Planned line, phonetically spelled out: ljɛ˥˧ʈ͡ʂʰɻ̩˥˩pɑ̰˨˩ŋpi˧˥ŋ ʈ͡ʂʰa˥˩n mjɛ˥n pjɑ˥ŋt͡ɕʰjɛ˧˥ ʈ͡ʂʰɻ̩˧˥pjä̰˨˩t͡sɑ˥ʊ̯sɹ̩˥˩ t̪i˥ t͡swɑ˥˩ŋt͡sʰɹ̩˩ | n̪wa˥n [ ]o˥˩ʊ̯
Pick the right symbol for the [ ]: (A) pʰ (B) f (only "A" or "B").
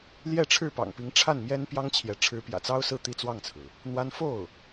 B